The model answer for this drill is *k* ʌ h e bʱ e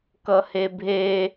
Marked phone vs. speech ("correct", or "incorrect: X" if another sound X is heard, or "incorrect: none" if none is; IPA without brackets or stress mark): correct